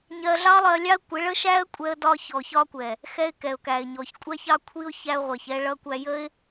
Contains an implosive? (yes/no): no